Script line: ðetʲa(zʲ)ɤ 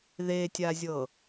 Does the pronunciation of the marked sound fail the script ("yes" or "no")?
no